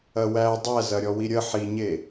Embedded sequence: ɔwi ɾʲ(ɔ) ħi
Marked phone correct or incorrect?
incorrect